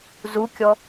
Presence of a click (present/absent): absent